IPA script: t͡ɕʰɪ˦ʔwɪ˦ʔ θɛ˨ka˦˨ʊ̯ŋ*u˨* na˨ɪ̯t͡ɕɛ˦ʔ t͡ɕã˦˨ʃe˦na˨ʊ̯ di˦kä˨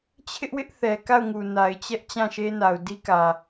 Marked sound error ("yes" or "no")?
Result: no